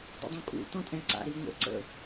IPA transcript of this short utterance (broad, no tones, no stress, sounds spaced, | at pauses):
dˤ ə̰ dˤ ũ kʼ ṵ t ɔ̃ tʼ ɛ̃ ǀ a̰ ɾ i ŋʷ ə̰ ǀ ə̰